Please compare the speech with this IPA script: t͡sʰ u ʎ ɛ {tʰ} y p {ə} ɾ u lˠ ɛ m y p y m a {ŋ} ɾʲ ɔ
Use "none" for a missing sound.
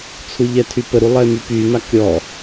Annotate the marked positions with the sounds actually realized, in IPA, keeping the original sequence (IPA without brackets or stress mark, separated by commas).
tʰ, ə, k